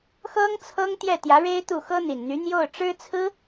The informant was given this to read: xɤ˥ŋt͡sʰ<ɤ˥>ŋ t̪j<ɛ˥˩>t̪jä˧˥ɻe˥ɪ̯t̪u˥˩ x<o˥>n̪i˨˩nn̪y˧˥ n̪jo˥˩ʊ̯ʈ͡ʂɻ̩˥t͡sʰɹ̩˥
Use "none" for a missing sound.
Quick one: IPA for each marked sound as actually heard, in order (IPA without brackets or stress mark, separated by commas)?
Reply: ɤ˥, ɛ˥˩, ɤ˥